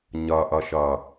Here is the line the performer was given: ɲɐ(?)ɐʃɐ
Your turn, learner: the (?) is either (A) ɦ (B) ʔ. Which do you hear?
B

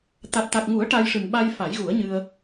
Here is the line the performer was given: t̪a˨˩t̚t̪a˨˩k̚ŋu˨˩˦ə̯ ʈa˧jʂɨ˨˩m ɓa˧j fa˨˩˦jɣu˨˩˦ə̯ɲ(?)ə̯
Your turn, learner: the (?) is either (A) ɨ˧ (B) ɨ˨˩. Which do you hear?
A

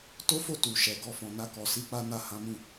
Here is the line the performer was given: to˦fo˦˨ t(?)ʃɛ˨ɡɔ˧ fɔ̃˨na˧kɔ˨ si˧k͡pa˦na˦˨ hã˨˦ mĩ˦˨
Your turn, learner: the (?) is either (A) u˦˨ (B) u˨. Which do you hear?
B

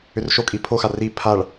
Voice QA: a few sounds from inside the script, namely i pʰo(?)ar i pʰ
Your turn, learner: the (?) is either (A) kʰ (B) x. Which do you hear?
B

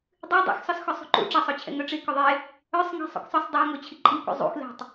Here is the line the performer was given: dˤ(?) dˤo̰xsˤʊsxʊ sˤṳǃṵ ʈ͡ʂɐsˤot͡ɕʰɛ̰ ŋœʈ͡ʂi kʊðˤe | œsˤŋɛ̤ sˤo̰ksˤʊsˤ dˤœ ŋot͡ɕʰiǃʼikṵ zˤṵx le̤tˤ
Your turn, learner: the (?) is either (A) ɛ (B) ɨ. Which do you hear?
B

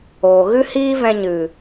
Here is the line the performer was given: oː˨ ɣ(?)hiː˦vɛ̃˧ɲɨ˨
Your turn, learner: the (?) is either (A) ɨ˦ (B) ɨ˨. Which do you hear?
A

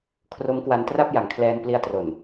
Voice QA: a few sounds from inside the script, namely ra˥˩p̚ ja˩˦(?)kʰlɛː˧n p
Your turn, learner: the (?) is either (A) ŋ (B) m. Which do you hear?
A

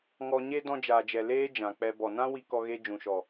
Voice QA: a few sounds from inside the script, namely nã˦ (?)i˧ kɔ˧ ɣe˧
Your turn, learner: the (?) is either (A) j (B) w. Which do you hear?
B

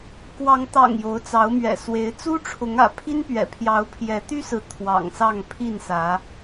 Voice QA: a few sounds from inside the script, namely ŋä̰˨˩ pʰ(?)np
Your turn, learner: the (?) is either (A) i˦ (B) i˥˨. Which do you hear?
A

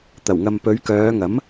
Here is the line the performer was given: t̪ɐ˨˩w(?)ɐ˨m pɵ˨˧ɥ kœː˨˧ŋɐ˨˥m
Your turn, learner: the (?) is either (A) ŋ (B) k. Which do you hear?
A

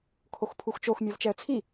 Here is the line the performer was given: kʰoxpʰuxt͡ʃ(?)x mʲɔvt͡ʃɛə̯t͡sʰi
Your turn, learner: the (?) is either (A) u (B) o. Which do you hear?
B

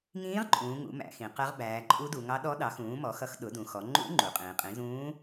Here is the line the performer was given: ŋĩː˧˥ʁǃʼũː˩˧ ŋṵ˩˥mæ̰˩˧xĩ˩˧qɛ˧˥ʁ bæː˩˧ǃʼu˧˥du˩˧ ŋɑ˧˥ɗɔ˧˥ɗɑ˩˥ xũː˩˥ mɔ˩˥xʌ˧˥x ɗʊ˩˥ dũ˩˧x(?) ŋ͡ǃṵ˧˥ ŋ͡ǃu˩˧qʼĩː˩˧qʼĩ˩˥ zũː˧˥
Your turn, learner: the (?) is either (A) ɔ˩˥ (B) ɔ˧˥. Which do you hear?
A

